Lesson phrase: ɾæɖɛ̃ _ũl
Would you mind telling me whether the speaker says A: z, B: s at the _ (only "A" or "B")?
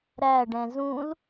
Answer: A